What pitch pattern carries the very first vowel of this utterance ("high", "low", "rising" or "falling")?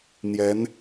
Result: rising